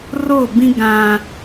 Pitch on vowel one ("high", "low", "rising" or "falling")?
falling